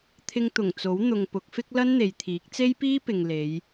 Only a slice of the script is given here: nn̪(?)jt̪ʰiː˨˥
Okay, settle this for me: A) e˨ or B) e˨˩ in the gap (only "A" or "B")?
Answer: A